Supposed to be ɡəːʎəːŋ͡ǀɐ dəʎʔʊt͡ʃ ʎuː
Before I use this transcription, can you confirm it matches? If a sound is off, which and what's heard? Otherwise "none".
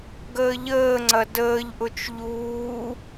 ə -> əː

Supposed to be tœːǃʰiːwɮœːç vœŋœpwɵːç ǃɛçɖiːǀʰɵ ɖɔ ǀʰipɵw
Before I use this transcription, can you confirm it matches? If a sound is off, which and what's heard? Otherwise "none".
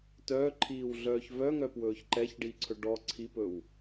none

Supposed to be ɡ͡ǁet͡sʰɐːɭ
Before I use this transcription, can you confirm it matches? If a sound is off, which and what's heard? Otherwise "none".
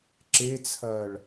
ɡ͡ǁ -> ǁ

